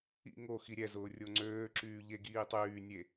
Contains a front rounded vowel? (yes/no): yes